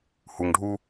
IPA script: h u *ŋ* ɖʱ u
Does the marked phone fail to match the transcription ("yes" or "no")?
no